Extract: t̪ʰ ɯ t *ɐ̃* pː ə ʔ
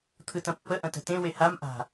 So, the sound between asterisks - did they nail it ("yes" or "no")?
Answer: yes